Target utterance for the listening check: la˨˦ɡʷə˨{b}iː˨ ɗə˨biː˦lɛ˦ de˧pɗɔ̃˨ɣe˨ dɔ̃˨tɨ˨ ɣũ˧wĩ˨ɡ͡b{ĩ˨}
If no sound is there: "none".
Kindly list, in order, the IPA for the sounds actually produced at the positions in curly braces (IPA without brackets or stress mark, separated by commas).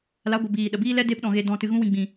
b, ĩ˨